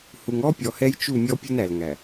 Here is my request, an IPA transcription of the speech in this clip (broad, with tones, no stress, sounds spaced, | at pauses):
h u˨ ŋ ɔ˦ pʲ ɔ˨ h ɛ˦ j t͡ʃ u˦˨ mʲ ɔ˦ pʲ u˦ n æ˨ l ŋ æ˨